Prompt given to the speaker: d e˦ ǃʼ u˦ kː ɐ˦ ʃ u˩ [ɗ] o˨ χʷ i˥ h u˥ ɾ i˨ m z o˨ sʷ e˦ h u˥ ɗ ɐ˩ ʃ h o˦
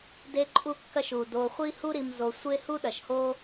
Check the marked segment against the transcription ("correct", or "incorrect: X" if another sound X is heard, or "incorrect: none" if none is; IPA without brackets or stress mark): incorrect: d